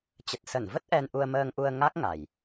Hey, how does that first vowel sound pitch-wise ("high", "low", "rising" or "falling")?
low